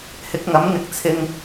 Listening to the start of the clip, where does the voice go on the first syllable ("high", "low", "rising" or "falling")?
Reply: rising